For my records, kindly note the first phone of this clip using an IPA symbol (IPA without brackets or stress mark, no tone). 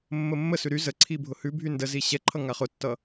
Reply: mː